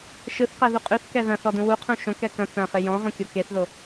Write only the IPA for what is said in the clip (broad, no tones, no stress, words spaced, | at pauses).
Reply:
ʃɯθqɛðu qʼʉθkɛ ðɐ̃θɔdũ wuqʰũ ʃõkɛ kɐ̃ t͡sɐ̃χɪ jɔ̃ʁũkʲo keθðo